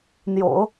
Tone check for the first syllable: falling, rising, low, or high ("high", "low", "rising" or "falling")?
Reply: low